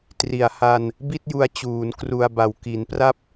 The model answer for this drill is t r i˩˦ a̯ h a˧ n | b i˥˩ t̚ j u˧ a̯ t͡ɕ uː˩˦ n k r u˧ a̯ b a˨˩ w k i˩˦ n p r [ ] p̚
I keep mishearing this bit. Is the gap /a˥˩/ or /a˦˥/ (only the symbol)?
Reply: a˦˥